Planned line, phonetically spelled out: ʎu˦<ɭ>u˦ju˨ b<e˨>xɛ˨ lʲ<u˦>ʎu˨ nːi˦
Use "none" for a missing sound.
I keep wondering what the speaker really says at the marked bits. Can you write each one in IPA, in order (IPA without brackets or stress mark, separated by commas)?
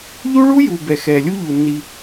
ɭ, ɛ˨, u˦